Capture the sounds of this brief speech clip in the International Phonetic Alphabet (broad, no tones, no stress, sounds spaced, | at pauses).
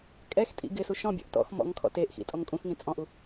kʼ ɛ x tʼ ḭ ɡ ɪ s u ʃ ɔ̃ bʲ ɔ̰ ʔ t ɔ̰ x m ɔ̰ ŋ kʰ ɔ̰ t e ʔ x ḭ tʼ ɔ ŋ kʼ ũ x ŋ ĩ t͡sʼ ɔ̃ ʔ u